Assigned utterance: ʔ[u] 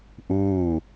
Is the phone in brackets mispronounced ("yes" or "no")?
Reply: yes